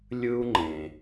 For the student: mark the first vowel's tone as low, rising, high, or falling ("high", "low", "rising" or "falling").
high